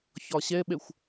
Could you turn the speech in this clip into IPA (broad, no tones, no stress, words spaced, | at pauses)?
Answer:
çɒɕɛɓɛxʷ